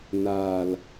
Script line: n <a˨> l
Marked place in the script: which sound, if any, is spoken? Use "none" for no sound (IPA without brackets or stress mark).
aː˨